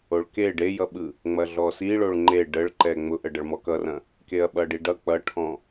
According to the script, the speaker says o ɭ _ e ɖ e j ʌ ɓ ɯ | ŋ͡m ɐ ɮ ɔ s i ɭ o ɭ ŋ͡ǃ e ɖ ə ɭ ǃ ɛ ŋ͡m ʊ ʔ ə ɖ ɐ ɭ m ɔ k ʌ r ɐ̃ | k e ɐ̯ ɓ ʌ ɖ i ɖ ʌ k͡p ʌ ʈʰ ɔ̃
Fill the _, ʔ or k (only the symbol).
k